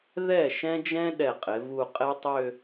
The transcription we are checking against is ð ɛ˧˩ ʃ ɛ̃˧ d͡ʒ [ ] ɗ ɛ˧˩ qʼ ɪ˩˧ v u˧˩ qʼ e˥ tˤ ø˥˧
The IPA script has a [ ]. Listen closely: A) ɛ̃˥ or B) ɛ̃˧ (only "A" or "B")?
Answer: B